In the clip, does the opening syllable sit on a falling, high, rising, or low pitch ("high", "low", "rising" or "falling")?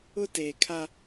high